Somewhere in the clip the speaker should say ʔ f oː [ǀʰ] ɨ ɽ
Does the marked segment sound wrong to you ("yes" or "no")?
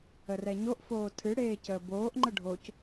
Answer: yes